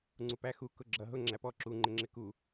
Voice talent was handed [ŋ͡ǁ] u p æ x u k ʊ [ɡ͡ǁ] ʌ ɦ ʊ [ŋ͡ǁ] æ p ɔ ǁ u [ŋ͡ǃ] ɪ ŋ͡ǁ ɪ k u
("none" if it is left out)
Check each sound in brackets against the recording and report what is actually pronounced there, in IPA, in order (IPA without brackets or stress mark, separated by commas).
ŋ͡ǀ, ɡ͡ǁ, ŋ͡ǁ, ŋ͡ǃ